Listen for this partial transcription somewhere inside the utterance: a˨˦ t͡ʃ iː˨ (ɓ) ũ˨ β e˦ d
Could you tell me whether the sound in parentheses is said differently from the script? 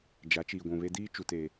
yes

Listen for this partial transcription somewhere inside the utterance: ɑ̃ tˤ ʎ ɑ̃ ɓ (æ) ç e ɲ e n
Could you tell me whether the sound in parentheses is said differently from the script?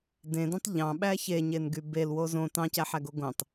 no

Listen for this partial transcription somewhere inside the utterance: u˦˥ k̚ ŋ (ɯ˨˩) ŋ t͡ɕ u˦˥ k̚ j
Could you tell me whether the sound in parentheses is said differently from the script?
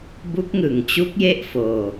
no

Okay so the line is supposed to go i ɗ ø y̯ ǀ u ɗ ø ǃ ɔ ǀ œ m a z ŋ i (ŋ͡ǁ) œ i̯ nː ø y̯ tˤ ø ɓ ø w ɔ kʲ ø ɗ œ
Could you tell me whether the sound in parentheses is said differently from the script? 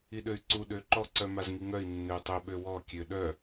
yes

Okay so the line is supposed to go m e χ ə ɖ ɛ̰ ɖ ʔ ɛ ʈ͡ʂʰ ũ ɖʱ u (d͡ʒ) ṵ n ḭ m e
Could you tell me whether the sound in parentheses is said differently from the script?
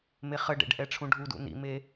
yes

